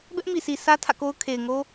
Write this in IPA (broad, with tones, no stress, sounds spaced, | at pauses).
b ɛ˦ ʔ m i˨ sʰ i˨ sʰ ä˦ tʰ ä̰˦˨ k o˦ ʊ̯ kʰ e˨ ɪ̯ ŋ o˦